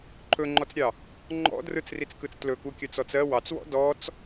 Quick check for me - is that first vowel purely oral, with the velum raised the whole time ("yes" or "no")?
yes